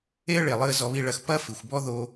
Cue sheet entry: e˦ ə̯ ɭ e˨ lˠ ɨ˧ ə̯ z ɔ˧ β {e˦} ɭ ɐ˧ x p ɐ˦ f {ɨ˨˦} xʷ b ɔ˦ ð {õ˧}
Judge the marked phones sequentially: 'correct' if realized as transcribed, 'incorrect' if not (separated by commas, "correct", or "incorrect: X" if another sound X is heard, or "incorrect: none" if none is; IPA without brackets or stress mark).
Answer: incorrect: i˦, incorrect: ɨ˨, incorrect: o˧